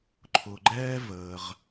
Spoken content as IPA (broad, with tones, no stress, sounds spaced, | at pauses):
ǃʰ ʊ˩ ɡ͡ǃ ɛː˥ v əː˩ ʁ